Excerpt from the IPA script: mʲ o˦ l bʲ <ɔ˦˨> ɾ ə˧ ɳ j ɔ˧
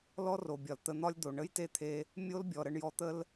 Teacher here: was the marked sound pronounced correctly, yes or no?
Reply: no